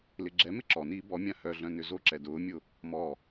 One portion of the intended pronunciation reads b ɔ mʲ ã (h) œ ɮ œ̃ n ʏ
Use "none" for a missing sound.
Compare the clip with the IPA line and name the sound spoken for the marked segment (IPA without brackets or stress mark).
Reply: h